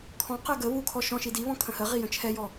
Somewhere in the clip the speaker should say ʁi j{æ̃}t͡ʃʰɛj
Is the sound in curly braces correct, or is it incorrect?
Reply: incorrect